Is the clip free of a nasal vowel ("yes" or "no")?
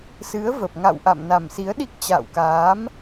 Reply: yes